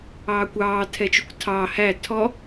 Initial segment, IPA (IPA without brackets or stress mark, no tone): ɑː